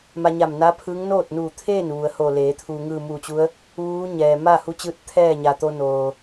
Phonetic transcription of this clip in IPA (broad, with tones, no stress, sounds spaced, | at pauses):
m a˧ ɲ a˧˩ m n a˧˥ pʰ ɯː˧˥ ŋ n oː˥˨ t̚ n uː˧˩ t̪ʰ eː˥˨ n ʋ u˩˧ ə̯ h o˧˩ l eː˩˧ t̪ʰ uː˩ ŋ ɯː˧˩ m uː˧˩ t͡ɕ u˧˥ ə̯ | ʋ uː˧˥ ɲ ɛː˩ m a˥˨ h u˧˥ t͡ɕ ɯː˧˥ t̚ t̪ʰ ɛː˥˨ ɲ a˩ t̪ o˧ n oː˩